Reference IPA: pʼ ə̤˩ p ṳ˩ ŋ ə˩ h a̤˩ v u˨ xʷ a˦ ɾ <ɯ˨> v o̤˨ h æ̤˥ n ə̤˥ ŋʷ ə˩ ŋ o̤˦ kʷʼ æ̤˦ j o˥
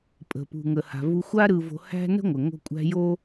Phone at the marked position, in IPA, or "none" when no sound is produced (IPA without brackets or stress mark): ɯ˨